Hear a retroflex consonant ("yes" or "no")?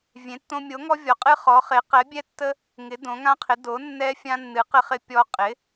no